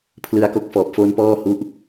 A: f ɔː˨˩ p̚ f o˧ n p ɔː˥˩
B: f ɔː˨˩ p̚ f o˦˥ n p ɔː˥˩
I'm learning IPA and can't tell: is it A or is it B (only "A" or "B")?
B